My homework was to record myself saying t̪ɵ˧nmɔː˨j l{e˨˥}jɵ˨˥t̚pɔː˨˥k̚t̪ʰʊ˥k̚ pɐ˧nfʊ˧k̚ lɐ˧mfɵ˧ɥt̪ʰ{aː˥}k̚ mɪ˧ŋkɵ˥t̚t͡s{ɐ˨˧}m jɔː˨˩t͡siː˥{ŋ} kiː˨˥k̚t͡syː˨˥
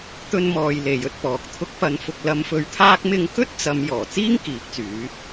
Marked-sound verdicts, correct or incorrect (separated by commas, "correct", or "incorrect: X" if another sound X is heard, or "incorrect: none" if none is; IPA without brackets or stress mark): incorrect: e˨, correct, correct, correct